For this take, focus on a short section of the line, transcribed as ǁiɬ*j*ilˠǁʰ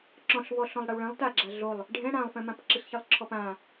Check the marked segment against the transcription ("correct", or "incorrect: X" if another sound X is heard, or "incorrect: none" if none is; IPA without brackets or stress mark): incorrect: ç